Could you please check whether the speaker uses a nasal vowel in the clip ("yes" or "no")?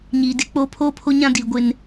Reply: yes